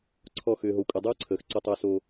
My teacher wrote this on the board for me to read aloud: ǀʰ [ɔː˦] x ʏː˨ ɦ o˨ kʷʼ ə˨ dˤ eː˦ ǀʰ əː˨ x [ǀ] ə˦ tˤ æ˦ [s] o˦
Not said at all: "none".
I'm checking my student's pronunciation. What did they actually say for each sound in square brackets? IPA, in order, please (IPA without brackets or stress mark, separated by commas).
ɔ˦, ǀ, s